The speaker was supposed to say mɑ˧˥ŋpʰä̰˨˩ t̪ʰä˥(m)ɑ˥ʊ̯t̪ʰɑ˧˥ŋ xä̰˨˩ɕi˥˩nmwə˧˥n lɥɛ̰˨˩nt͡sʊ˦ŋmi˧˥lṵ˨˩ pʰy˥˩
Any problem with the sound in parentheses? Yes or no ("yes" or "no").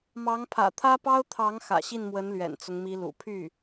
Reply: yes